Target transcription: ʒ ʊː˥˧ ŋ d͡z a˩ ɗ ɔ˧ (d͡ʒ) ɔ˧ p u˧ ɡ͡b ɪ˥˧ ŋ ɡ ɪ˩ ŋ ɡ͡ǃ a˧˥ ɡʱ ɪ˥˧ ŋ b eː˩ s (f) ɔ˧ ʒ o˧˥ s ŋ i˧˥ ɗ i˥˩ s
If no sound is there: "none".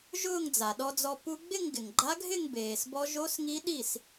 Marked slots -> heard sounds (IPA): d͡z, b

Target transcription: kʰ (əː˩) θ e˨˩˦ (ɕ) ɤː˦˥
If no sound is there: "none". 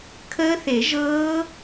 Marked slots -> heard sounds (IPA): əː˦˥, ʒ

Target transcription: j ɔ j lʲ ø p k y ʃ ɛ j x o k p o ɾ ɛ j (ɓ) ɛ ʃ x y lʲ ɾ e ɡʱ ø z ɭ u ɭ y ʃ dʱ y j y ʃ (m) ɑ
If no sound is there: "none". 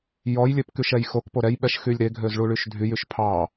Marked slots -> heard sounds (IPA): ɓ, pʰ

